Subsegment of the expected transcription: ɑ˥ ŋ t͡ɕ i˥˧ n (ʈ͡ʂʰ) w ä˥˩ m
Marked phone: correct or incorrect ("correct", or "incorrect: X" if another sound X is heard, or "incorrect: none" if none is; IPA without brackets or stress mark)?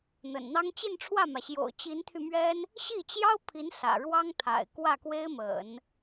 correct